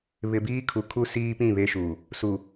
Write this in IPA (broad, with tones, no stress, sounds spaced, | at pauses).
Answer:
β ɪ˨ b iː˦ kʰ u˨ kʰ u˦ s iː˦ p ĩ˦˨ β e˦ ʃ uː˨ | s u˨